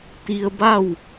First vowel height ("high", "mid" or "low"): high